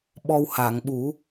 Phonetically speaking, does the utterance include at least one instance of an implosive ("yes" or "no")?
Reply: yes